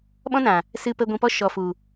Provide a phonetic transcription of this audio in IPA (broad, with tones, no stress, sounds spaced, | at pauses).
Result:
ɓ ɔ̃˦ n ã˨ | s ɨ˧ p ə˧ ɡʷ ĩ˨ p ɔ˧ ʃ ɔ˨ f u˨